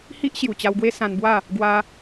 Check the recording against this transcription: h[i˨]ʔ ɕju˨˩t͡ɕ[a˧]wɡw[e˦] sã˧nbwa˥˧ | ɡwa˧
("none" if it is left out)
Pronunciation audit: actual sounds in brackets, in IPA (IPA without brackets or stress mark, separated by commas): i˦, a˧, e˦